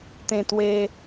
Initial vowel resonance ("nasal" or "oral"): nasal